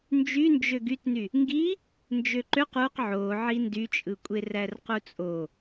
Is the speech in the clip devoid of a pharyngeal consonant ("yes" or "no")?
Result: no